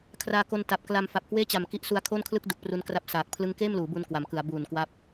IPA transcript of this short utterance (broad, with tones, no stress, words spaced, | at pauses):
kʰraː˧ko˧nta˨˩p̚ kla˧m fa˨˩p̚kweː˥˩t͡ɕa˨˩m ki˦˥ʔsu˧a̯kʰoː˥˩nkʰlɯ˥˩k̚ du˨˩k̚pru˦˥nkra˥˩p̚ saː˨˩k̚ pʰlɯ˦˥ŋkeː˥˩mluː˩˦ bu˧nkwa˩˦mkɯ˩˦a̯ buː˨˩nkwa˦˥p̚